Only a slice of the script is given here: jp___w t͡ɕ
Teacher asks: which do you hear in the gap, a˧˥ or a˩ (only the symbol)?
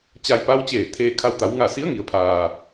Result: a˧˥